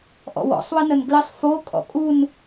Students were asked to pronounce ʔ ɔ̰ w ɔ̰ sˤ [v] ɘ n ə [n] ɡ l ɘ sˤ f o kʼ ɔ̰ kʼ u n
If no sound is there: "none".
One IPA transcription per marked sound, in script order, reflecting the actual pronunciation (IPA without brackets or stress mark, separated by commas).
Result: w, n